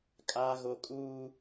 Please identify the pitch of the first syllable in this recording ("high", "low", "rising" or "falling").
low